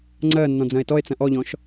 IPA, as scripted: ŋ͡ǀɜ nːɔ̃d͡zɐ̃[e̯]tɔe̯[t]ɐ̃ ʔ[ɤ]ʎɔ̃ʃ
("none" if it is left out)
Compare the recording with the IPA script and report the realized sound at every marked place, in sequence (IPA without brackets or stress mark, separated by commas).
e̯, t͡s, ɔ